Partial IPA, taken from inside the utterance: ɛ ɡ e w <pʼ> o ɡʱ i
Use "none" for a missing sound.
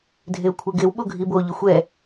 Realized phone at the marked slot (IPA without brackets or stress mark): ɓ